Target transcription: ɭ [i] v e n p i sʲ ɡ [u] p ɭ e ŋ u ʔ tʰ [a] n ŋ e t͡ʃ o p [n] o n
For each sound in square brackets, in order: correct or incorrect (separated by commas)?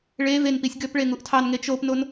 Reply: incorrect, incorrect, incorrect, correct